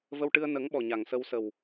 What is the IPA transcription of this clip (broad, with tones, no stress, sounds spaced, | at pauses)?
v ə˧ w ʈ ɨ˧ ə̯ n ə˨˩˦ ŋ ɓ ɔ˨˩ ɲ a˨˩ ŋ s ə˧ w s ə˨˩ w